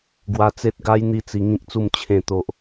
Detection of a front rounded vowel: absent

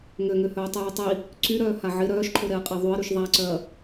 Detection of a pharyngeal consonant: present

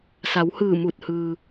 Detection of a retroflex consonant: absent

